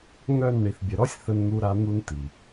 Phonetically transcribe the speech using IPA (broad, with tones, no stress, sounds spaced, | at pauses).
ŋ œ˦˨ n ɳ i˨ θ bʲ ə˨ ɾ ɔ˦ sʲ θ ə˦ n n̪ u˦ ɾ a˦ n̪ u˦ n t̪ i˨